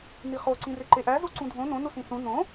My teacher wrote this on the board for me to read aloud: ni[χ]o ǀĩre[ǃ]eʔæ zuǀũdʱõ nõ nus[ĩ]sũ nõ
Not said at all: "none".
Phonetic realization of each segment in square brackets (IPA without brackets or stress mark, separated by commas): χ, ǃ, ĩ